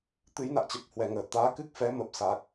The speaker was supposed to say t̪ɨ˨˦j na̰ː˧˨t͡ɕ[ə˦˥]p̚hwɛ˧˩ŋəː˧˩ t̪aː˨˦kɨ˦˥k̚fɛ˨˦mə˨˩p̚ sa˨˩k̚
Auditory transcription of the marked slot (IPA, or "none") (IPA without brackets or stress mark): ə˨˩